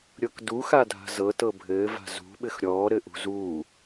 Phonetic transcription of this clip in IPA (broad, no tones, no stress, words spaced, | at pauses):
ɾʲɤkduxadʱa̤ zɤtɤ bʱɘːva̤ zṳɓɘx ɾʲɔː ɾɘʔṳzuː